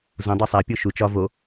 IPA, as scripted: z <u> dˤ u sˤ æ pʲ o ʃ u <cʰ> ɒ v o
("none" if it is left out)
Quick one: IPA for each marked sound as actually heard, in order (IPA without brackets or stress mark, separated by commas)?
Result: ũ, t͡ʃ